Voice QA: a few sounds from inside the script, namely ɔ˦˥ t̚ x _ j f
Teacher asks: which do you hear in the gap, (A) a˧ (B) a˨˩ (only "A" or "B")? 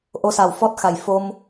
B